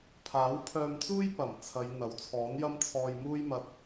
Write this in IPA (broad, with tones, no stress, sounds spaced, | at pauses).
pʰ aː˨˥ w pʰ œː˧ m t͡s uː˥ j p ɐ˨˩ m t͡sʰ ɐ˨˧ j n̪ ɐ˨˥ w t͡sʰ ɔː˨˥ n j ɐ˥ m t͡sʰ ɔː˧ j m uː˥ j m ɐ˧ t̚